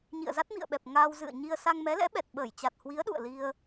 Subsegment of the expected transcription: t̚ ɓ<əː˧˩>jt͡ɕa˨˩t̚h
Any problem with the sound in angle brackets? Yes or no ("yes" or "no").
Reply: no